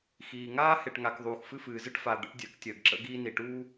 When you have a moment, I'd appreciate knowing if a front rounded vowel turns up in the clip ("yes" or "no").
no